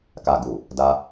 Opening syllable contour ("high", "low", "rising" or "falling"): low